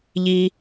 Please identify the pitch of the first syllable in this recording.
low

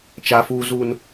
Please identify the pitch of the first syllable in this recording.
high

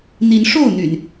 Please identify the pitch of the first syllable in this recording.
rising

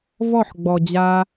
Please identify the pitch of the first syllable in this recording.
falling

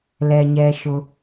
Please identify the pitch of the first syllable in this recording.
low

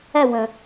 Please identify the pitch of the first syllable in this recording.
falling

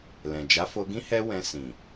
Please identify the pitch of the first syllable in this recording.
low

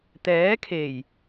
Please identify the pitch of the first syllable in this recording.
rising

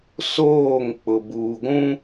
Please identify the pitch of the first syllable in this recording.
falling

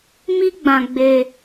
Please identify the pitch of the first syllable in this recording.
high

